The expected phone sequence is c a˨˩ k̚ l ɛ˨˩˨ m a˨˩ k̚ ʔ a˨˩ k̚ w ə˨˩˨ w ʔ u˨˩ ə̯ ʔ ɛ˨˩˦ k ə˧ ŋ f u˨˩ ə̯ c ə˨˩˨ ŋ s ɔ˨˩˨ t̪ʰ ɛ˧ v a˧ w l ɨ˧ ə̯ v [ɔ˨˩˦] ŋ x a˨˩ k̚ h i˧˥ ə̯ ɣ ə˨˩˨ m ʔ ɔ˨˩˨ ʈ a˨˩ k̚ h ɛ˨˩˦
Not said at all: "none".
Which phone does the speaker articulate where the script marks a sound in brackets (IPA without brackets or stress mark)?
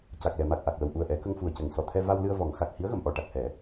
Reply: ɔ˨˩˦